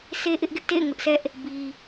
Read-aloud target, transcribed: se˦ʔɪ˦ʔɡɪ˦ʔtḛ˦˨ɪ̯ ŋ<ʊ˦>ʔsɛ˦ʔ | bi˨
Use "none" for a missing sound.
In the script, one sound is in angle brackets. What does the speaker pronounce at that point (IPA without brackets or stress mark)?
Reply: ʊ˦